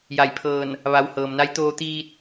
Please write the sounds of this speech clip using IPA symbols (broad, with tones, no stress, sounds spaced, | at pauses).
j a˧˩ j pʰ ɤː˧˩ n | ʋ a˩˧ w h ɤː˩ m n a˧˥ j t̪ oː˧ t̪ iː˧ t̚